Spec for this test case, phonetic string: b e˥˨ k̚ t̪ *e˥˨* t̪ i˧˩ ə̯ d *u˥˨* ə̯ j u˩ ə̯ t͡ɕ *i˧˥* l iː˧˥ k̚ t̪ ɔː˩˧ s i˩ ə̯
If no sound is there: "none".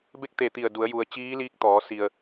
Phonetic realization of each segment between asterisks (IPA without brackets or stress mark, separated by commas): e˧˩, u˩˧, iː˧˥